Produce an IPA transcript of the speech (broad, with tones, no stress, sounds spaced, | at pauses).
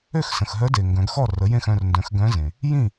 ø˥˩ x s ə̃˩ x ɦ œ˧˥ d e˩ ŋ ɡ œ̃˩˧ ɡ x ɔ˥˩ r ə˩˥ j ẽ˥˩ x œ̃˥˩ r n d œ̃˩˥ x ɡ œ̃˧˥ z ẽ˩ | j ĩ˥˩